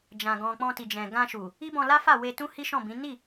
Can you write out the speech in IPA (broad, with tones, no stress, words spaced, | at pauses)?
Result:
d͡ʒã˨ɡɔ̃˨ k͡pɔ̃˧ti˨d͡ʒɛ̃˨ ɡã˧ʃu˨ | i˦bɔ̃˧la˦fa˦˨ we˧tũ˦ hi˦ʃɔ̃˦˨bĩ˨˦ ni˦˨